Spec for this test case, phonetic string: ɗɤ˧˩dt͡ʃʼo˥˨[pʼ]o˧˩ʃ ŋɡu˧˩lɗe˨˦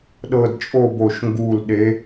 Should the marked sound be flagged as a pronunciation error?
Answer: yes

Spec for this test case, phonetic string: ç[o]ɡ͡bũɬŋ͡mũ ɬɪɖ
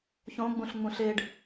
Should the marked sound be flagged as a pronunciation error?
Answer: yes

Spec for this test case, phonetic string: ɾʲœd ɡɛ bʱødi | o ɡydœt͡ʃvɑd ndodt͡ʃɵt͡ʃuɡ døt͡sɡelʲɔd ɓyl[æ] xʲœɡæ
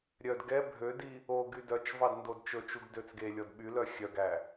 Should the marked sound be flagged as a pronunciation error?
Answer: yes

